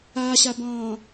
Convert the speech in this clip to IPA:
aː ɕ a b ɑ̃ː

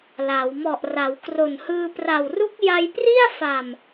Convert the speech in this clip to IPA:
l a˩˦ w m ɔ˨˩ ʔ r a˩˦ w k r o˨˩ n h ɯː˧ p r a˨˩ w r u˦˥ k̚ j a˧ j p r i˥˩ a̯ f a˨˩ m

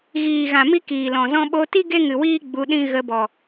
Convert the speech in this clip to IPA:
ɣ iː˨ ɣ ã˨ m i˦ k iː˨ l ɔ̃˨ z ɔ̃˦ ɓ o˧ t i˦ ɡ e˦ ŋ ɨ˨ w iː˦ ɡ͡b u˧ ɗ ĩ˦ ɣ ə˧ b ɔ˨

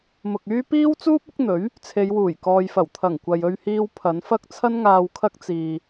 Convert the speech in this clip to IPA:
m ʊ˨ k̚ yː˥ p iː˥ w t͡s uː˥ p̚ ʊ˨˥ k̚ n̪ ɵ˨˥ ɥ | t͡sʰ e˨˧ j w uː˨˩ j k ɔː˨ j f ɐ˨˩ w t̪ʰ ɐ˨˩ ŋ kʷ ɐ˨ j ɵ˧ ɥ h iː˧ w pʰ ɐ˨˧ n f ɐ˥ k̚ t͡sʰ ɐ˥ n ŋ aː˧ w kʰ ɐ˥ k̚ t͡s iː˧

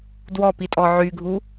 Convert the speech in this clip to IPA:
d w ɔ p i tʼ ɔ ʕ y ɡʱ u

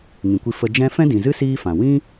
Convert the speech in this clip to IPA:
ŋ ĩ˨ kʷ i˧ f ə˧ d͡ʒ ɛ̃˦ f ɛ̃˦ d ĩ˨ z ɨ˦ s iː˦ f ã˨ w ĩ˦

